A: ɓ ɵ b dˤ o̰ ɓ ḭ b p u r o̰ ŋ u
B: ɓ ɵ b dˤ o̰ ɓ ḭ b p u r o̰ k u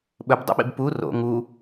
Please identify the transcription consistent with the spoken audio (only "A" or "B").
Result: A